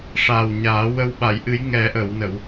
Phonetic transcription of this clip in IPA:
ʂ aː˨˩ w ɲ aː˨˩˦ w ə˧ w ɓ a˨˩˨ j ʔ ɨ˨˩˦ j ŋ ɛ˨˩˦ ʔ ə˨˩˨ w n ə˨˩˨ w

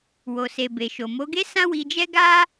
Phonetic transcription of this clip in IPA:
w o˨ s e˨ b e˨ ʃ o˨ m o˨˦ ɡ e˦ s ã˦ w i˧ d͡ʒ ɛ˦ ɡ a˦

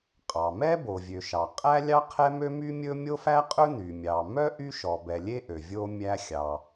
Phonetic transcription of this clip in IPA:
qʼ ɑ˩ m ɛ˥ b o˩ vʲ ø˩ ʃ ɑ˩ qʼ æ˥ lʲ ɑ˥ qʰ ɛ˥ m ø˥ m y˥ mʲ ɵ˥ mʲ o˥ f æ˥ qʼ ɵ˥ n y˩ mʲ ɑ˩ m œ˥ ʔ y˥ ʃ ɔ˩ b ɛ˩ lʲ e˥ ʔ ø˩ vʲ o˥ mʲ æ˥ xʲ ɑ˩

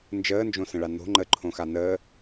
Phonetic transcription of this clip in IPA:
n d͡ʒ əː n d͡ʒ õ s ə̃ ɭ a n o̤ ŋ͡ǃ ə ǃʰ õ x a n əː

